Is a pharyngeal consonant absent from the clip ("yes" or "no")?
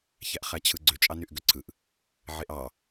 no